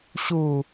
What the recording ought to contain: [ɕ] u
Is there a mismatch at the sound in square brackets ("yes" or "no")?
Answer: no